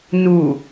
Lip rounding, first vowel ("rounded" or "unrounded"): rounded